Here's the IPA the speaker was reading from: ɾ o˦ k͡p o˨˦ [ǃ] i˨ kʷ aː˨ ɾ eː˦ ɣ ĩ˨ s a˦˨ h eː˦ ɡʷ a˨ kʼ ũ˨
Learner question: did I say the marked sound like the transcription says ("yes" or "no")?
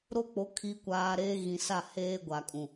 no